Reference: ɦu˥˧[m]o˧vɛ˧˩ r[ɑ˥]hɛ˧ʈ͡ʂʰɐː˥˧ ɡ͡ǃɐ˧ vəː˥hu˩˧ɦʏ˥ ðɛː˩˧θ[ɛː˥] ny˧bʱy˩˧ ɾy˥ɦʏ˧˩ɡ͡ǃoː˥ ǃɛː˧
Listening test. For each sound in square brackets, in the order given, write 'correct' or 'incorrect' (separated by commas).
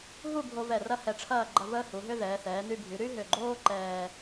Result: incorrect, incorrect, incorrect